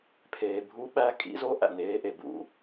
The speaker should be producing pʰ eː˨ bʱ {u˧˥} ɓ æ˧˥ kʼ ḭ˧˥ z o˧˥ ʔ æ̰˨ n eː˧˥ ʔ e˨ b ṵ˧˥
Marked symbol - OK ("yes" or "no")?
yes